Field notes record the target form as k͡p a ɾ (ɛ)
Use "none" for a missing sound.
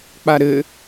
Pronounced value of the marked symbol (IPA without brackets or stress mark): ɘ